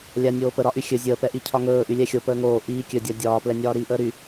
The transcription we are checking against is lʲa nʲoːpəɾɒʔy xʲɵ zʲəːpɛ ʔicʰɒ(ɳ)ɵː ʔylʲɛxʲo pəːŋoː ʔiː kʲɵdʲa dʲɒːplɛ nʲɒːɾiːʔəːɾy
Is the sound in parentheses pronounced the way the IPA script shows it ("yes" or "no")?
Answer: no